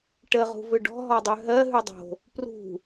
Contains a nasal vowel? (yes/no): no